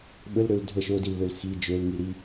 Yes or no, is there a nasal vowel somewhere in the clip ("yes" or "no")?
no